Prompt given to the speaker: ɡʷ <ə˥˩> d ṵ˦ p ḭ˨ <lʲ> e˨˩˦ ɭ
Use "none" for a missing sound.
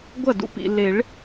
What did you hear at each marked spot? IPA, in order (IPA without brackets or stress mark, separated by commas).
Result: ɐ˥˩, l